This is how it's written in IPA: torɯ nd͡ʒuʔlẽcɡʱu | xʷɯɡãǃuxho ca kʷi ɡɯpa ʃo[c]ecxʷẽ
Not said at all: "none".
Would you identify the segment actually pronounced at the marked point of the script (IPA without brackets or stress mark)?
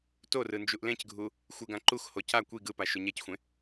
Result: ɲ